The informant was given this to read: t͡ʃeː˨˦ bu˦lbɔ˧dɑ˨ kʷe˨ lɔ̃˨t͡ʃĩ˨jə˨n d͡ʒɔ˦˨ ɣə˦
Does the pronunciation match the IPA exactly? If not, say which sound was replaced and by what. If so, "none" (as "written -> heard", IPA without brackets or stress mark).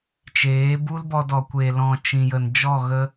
ɑ˨ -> ɔ˨